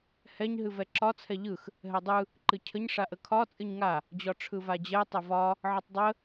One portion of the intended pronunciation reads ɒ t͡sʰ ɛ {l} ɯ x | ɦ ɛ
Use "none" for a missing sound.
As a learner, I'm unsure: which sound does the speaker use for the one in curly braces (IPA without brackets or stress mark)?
ʎ